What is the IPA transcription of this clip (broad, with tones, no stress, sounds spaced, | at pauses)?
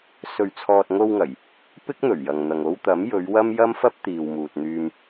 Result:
s ɵ˨ ɥ t͡sʰ ɔː˨ t̚ ŋ o˧ w ŋ ɐ˨˩ j | p ɪ˥ k̚ n̪ ɵ˨˩ ɥ j ɐ˨ ŋ n̪ ɐ˨ ŋ o˧ w t̪ ɐ˨˥ m j ɵ˨˧ ɥ w ɐ˥ m j ɐ˥ m f ɐ˥ p̚ t̪ iː˨ w m uː˨ t̚ n̪ yː˧ m